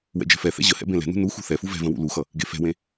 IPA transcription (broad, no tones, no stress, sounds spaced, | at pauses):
w ɛ̰ d͡ʒ ɛ̤ f ɛ θ ɛ̰ ʑ ə h ɛ̰ b ẽ l ɛ̤ n ṳ n u x ṳ θ ɛ f u v ɛ̤ v ə̃ w ṵ l u x ʌ | ɡ e f ɛ̤ w ẽ